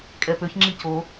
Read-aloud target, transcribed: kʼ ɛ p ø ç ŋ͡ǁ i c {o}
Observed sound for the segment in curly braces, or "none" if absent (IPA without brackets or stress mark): o